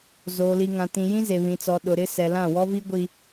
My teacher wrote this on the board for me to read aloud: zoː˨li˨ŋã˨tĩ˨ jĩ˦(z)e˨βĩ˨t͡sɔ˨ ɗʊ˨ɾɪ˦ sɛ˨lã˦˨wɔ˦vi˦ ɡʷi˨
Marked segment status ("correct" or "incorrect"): correct